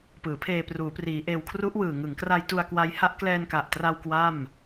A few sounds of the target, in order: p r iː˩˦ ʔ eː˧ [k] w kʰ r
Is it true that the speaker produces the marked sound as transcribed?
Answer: no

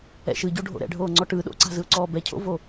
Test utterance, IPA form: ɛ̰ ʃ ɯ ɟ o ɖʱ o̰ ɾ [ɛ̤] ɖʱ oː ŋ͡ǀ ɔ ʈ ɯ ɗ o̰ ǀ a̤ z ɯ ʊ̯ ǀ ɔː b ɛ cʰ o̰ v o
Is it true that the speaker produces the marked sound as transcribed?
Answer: no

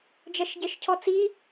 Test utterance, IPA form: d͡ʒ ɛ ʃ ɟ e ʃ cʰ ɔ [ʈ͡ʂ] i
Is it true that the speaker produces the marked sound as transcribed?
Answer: no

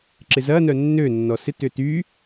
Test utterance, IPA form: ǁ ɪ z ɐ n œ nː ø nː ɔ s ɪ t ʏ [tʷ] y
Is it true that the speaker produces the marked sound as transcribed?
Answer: no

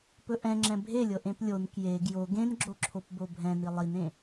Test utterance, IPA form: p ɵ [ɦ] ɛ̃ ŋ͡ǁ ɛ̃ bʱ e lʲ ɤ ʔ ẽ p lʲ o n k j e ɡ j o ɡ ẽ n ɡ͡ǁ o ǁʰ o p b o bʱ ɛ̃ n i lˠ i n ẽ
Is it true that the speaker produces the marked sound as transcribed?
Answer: no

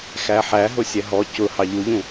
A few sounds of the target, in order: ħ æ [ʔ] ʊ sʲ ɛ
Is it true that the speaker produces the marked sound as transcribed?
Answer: no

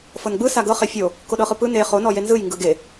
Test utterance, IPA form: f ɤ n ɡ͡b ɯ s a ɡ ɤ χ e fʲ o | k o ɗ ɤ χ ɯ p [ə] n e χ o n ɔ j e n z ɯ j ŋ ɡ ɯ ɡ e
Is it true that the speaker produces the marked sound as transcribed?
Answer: no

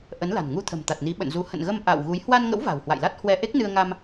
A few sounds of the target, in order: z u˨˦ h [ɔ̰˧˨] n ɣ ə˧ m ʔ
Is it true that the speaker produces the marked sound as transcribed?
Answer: no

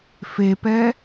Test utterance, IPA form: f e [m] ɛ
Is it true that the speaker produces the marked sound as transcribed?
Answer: no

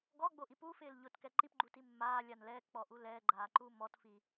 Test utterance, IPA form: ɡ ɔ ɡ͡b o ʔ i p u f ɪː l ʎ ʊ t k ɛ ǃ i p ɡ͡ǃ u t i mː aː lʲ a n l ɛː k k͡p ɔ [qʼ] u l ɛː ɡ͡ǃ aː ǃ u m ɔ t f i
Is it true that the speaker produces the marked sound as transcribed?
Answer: no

